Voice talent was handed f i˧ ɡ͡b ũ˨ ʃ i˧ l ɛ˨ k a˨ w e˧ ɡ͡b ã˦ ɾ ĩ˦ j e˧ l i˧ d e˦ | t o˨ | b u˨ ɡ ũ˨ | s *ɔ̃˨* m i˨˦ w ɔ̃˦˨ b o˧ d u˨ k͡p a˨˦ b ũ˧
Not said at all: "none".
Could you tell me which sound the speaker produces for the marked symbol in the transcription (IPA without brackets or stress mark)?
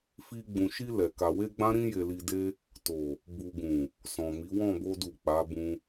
ɔ̃˨